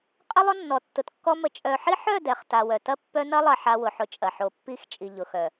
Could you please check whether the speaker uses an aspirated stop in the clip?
no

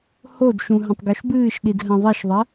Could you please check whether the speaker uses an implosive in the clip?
yes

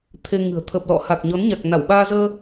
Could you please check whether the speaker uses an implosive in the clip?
yes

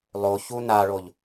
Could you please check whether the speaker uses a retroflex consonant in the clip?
yes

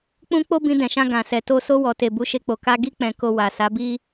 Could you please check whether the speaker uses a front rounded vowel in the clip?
no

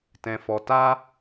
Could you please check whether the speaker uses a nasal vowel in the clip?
yes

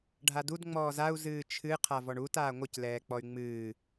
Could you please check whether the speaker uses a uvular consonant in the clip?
yes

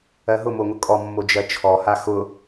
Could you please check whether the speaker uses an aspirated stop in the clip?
yes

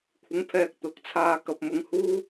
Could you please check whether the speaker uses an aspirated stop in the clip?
yes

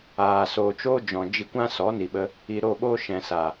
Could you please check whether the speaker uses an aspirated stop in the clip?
no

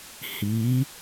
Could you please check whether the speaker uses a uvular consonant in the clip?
no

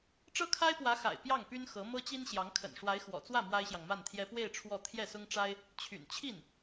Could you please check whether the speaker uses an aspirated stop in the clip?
yes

